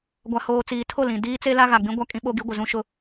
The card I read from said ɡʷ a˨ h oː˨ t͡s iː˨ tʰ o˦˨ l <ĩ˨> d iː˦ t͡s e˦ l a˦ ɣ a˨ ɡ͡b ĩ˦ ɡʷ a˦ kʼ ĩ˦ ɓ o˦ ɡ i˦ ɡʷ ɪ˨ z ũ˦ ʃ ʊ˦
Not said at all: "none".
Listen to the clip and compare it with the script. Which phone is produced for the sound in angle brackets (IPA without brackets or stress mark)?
ĩ˨